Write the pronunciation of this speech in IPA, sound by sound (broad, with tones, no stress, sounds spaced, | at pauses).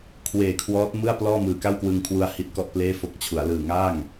kʰ w eː˨˩ kʰ w ɔː˦˥ t̚ m ɯ˥˩ a̯ p l ɔː˥˩ m ɯː˨˩ k a˥˩ w k w ɯ˧ ŋ kʰ w u˧ a̯ h i˦˥ t̚ k ɔ˥˩ ʔ p l eː˥˩ f o˦˥ k̚ t͡ɕʰ u˩˦ a̯ l ɯː˨˩ ŋ a˥˩ ŋ